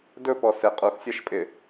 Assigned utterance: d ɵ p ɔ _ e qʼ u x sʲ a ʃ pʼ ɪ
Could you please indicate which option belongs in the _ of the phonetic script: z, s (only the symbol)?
s